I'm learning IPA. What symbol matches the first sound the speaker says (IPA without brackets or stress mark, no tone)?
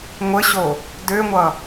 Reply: ŋʷ